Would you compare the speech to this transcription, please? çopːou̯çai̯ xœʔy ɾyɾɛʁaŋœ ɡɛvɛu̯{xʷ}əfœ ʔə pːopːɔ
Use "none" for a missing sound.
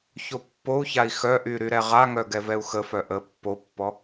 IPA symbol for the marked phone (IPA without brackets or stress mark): x